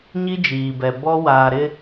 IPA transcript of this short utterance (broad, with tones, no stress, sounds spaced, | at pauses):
ɲ i˦ d͡ʒ iː˨ b ɛ˨ b ɔ˦ w aː˨ ɾ ɪ˦